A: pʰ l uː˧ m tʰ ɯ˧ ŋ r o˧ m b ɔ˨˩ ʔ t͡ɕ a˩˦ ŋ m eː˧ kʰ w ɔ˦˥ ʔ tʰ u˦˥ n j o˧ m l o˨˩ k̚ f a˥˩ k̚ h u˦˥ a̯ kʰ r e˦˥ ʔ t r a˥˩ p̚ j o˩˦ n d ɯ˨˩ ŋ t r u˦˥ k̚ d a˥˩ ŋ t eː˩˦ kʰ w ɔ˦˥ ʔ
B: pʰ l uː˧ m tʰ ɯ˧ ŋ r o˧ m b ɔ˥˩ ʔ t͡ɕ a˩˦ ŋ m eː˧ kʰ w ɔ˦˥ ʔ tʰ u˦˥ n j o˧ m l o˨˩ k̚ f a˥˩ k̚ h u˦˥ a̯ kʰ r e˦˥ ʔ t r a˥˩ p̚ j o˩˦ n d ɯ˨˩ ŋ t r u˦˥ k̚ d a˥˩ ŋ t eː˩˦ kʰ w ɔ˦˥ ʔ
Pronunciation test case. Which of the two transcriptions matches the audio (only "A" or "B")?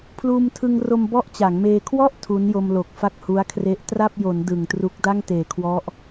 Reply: B